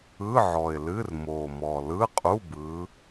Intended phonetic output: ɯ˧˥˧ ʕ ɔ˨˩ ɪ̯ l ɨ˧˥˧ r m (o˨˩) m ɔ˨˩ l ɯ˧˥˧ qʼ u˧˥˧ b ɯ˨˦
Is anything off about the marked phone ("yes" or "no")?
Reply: no